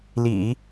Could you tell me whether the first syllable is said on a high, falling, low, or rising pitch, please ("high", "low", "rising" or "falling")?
low